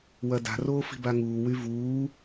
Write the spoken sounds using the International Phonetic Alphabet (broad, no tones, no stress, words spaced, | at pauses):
wɐda̤ roːfi̤baŋuː wyvuː